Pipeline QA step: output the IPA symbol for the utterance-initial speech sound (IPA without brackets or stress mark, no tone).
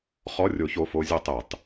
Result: χ